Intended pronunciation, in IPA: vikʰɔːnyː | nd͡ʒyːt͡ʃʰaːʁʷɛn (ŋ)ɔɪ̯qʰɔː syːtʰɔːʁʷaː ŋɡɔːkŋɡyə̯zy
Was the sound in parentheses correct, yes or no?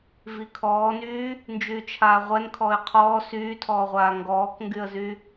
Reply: no